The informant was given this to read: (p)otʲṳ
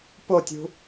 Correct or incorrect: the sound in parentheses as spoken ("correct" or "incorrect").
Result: correct